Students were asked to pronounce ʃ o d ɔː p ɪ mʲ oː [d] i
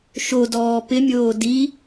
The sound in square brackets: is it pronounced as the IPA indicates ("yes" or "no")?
yes